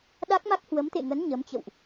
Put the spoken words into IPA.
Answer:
ɗ a˦˥ k̚ m a˦˥ k̚ h w ə˨˦ m t̪ ḛ˧˨ ŋ ə˨˦ n ɲ ə˨˦ m t͡ɕ ə̰˧˨ w ʔ

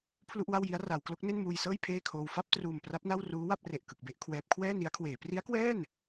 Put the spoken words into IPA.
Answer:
pʰ l u˥˩ ʔ w a˥˩ w j i˦˥ a̯ r a˩˦ w k l o˦˥ k̚ n e˥˩ n m uː˧ j s ɤː˥˩ j pʰ eː˥˩ kʰ oː˧ w f a˥˩ p̚ t r uː˨˩ m p r a˦˥ p̚ n a˥˩ w r uː˦˥ w a˥˩ p̚ r e˨˩ ʔ k ɯ˨˩ k̚ b e˥˩ ʔ kʰ w ɛː˦˥ p̚ kʰ w ɛː˥˩ n i˦˥ a̯ kʰ w eː˩˦ p r i˦˥ a̯ k w ɛː˥˩ n

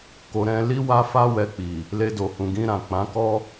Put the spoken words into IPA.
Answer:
k o˧ ɾ ɛ̃˧ l i˦ w a˦ f a˦ w ɛ˧ k͡p i˨ | l e˧ d o˨ h ũ˨ ɡ ĩ˧ ɾ ã˨ k͡p ã˨˦ k ɔ˦

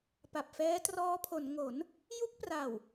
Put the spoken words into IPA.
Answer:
p a˨˩ p̚ f ɛː˦˥ t r ɔː˦˥ pʰ o˩˦ n ŋ o˩˦ n | j u˦˥ k̚ p r a˨˩ w

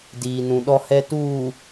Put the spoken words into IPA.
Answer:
d iː˨ n ũ˨ ɗ ɔ˨ h ɛ˨ t uː˨

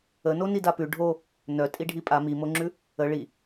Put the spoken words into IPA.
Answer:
ə n o n i d a p ʉ ɖʱ o | n œ tʼ i ɖʱ i pʼ a m i m o ŋ͡ǁ ʉ | ə ɭ i

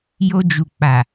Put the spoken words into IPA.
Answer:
j o˧ d͡ʒ u˨ k͡p a˨

